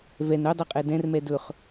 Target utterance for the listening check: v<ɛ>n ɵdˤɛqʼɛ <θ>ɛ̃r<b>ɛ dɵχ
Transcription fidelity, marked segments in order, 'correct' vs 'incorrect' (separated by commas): correct, incorrect, incorrect